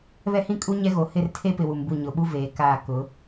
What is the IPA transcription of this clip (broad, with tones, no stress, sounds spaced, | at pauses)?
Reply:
β ɛ˦ h ĩ˦ kʼ u˦ ɲ ɛ˦ ɣ o˨ h ɪ˦˨ r tʰ e˦ p ɪ˨ w u˨ m b u˦˨ ɲ ʊ˨ ɓ u˦ v eː˨ k aː˦˨ k ʊ˨˦